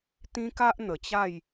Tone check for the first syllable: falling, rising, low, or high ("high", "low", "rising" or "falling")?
high